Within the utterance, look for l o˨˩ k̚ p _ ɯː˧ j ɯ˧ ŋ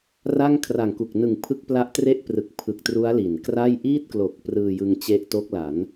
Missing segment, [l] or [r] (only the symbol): r